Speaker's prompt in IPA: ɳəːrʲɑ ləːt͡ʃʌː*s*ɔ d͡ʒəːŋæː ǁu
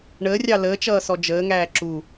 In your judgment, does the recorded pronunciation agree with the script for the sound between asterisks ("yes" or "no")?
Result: yes